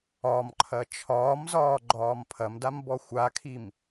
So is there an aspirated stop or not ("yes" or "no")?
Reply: yes